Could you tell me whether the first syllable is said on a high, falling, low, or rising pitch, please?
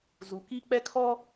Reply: low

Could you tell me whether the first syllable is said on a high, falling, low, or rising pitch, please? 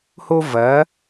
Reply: high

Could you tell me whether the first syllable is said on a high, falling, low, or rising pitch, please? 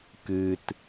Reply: low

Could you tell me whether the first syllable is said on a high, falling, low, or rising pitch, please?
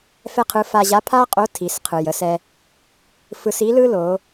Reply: high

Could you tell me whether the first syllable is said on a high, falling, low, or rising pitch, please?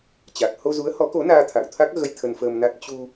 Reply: low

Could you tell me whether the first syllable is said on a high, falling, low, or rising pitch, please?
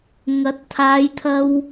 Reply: rising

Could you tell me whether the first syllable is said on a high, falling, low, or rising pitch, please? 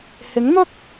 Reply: rising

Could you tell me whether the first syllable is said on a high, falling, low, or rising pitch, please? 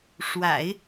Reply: low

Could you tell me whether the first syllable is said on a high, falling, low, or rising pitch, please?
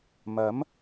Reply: rising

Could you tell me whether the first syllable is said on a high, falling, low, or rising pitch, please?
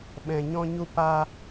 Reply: low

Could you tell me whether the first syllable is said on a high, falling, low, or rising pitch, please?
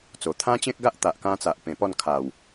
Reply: low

